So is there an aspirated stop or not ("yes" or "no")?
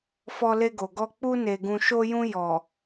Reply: no